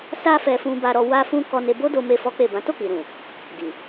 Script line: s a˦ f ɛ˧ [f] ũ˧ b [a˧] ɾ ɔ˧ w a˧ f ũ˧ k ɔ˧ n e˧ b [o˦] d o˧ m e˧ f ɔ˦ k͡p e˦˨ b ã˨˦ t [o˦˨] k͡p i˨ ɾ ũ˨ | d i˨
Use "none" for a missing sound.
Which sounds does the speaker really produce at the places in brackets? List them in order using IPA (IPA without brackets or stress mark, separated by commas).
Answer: f, a˧, o˦, o˦˨